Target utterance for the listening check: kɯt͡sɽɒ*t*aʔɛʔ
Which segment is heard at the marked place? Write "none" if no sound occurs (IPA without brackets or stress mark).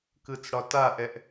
t